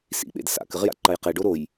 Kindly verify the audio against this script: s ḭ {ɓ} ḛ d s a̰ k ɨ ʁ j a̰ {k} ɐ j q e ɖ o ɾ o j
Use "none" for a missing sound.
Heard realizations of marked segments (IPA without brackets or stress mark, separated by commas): ɓ, ǃ